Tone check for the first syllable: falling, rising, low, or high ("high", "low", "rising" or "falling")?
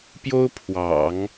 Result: high